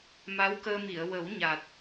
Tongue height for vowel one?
low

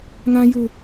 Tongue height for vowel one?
low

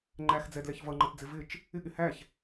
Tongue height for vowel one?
low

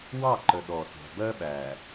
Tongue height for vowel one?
low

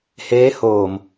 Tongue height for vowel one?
mid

